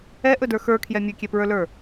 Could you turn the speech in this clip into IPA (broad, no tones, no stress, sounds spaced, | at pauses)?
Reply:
ɛ ʔ ɵ d ə˞ x ə˞ kʰ j ɛ mʲ ɵ kʲ ɛ p ɹ ə˞ l ə˞